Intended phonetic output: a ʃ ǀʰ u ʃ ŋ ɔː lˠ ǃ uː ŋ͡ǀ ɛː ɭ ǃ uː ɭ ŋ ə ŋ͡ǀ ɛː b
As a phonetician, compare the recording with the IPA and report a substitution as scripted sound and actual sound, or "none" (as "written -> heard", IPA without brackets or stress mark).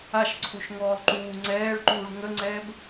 none